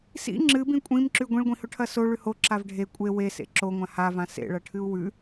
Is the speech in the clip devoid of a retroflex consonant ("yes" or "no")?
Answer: no